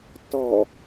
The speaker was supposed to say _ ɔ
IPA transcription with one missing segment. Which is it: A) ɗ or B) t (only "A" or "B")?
B